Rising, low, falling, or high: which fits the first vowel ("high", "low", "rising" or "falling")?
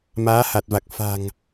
rising